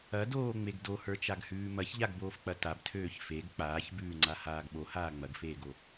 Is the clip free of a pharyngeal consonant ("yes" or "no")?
yes